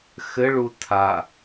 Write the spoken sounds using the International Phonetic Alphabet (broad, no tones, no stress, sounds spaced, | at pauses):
x ɘ ɭ u tʰ a